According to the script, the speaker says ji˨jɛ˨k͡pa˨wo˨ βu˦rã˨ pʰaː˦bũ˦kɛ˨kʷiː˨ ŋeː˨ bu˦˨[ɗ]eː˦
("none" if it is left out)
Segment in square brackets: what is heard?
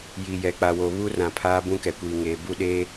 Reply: ɗ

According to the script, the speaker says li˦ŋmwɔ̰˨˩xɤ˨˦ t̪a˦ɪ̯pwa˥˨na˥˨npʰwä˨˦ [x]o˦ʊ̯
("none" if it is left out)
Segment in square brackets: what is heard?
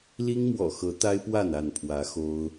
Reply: x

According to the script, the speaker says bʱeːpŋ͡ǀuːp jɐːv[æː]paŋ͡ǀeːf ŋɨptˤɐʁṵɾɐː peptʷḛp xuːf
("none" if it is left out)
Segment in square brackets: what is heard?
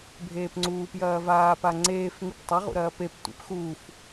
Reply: aː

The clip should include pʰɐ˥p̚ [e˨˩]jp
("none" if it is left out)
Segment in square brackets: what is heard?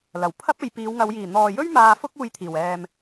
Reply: e˨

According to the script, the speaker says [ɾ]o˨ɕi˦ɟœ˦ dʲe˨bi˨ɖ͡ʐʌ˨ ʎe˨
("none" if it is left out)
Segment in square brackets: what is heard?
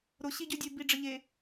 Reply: ɾ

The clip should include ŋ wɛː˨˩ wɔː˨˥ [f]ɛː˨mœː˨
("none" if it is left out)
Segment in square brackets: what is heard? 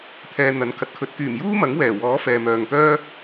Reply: f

